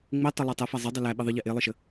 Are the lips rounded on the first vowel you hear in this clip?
no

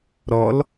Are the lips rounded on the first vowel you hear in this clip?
yes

